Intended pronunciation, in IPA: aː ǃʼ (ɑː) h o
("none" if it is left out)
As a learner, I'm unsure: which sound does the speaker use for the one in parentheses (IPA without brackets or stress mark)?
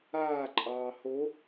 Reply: ɑː